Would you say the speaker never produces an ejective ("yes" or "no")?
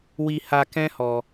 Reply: yes